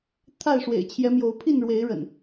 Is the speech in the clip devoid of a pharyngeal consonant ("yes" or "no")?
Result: yes